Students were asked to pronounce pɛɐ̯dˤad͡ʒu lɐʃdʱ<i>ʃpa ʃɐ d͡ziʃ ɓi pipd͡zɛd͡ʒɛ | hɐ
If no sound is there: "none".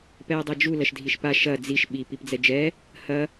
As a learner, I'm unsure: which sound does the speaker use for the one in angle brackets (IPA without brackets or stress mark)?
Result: i